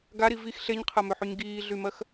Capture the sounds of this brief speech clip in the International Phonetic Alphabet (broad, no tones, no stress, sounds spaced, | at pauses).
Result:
ɡ a ɾ i v i x ɬ e ɲ qʰ ɜ m ø ħ y ɲ ɡ iː ɮ y m ɜ x